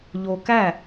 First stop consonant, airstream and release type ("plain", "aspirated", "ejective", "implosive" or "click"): plain